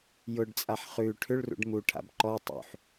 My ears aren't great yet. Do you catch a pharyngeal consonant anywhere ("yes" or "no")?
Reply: yes